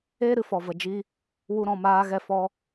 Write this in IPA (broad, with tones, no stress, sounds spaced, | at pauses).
e˦ ɾ ɨ˧ f ɔ˨ v ə˨ d͡ʒ i˧ | w u˧ ɾ ɔ̃˨ m aː˧ ɣ ɛ˦˨ f ɔ˦